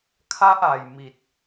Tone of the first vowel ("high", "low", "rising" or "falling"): high